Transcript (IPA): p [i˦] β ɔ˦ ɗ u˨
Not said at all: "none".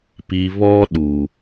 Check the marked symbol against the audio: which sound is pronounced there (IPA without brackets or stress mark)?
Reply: i˨